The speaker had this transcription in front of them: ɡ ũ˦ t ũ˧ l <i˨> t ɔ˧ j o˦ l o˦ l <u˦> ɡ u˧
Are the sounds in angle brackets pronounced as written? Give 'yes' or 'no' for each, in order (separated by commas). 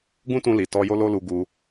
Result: yes, no